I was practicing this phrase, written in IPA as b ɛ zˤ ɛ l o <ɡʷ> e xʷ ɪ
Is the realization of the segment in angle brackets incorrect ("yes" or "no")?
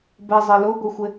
no